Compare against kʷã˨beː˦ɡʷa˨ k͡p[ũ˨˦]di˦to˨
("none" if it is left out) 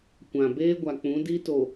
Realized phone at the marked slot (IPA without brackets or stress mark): ũ˨˦